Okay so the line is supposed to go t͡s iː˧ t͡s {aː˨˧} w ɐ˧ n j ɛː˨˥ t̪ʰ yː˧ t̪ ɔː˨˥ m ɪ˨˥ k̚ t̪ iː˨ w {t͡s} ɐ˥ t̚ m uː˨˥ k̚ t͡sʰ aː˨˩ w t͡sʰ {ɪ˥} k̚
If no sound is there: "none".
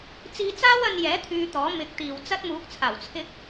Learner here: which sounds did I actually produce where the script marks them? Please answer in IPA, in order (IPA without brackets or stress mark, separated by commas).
aː˥, t͡s, ɪ˥